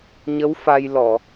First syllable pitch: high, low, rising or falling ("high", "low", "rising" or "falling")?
rising